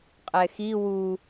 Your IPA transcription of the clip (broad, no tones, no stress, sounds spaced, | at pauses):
qʼ ɛ x i w u